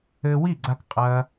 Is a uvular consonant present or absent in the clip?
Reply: present